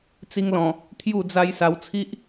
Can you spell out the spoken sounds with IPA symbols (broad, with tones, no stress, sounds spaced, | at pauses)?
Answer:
t͡s i˧ ŋ l ɔ̃˨˩ | t̪ʰ j u˥˧ d͡z a˦ j s a˧ w t͡sʰ i˦ ʔ